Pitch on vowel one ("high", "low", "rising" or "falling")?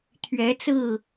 rising